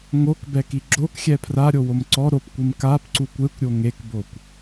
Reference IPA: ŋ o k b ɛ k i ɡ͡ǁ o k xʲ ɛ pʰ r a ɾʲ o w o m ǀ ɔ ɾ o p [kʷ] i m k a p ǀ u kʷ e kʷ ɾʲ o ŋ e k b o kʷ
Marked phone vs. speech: correct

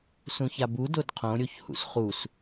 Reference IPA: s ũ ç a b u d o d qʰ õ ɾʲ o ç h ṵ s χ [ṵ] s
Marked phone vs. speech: incorrect: u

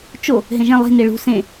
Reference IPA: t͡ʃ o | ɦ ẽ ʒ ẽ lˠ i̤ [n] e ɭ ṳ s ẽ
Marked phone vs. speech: correct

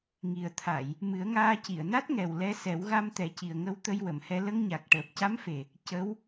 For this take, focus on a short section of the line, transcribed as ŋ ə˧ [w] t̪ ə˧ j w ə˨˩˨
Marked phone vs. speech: correct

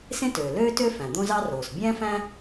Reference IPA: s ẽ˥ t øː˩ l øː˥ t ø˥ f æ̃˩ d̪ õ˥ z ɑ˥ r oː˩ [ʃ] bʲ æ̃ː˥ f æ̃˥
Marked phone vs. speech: incorrect: s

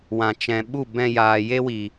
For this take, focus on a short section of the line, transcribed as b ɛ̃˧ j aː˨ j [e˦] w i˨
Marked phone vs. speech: correct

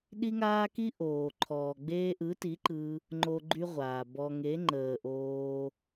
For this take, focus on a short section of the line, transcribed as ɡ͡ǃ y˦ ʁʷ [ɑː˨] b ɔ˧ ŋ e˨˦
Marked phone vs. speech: incorrect: aː˨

